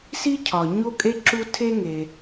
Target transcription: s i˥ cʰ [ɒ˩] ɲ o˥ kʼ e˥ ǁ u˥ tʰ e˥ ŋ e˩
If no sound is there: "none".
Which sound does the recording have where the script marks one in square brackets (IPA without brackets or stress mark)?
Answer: ɒ˩